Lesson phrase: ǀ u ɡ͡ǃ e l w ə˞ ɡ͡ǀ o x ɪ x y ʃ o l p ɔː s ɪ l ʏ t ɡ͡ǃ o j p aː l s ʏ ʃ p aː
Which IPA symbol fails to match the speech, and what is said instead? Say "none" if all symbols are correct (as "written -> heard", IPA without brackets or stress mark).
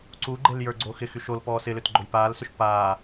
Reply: w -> j